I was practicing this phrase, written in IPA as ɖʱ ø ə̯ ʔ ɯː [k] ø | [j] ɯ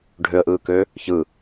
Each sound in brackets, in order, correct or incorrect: correct, incorrect

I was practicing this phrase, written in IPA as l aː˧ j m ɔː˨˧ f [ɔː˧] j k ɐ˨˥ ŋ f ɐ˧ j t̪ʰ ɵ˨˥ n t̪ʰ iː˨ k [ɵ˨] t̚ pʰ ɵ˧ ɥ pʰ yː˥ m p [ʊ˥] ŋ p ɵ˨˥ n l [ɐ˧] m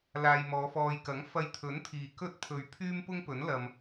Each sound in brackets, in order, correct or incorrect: correct, incorrect, correct, correct

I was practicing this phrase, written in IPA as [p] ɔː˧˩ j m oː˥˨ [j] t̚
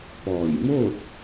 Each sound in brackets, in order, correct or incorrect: correct, incorrect

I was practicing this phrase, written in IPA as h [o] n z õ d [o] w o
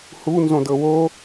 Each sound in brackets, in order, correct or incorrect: incorrect, incorrect

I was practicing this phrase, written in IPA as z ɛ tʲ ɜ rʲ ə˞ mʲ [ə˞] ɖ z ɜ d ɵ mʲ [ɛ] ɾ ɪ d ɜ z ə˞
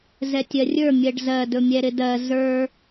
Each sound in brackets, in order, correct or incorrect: incorrect, correct

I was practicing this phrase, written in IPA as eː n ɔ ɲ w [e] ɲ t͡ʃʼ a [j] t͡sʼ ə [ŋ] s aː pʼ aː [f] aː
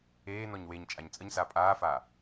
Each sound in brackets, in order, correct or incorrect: correct, incorrect, incorrect, correct

